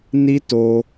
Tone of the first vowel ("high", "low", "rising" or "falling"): high